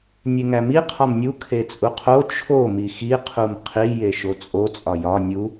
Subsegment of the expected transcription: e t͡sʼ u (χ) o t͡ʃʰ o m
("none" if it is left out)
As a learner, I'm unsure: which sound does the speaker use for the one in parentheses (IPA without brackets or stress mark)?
qʰ